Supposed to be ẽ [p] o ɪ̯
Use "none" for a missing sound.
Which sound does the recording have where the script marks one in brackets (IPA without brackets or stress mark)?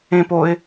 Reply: p